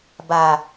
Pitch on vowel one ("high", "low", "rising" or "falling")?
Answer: low